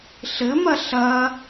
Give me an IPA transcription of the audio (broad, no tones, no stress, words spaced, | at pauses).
ɬɘmɐ ɬɐ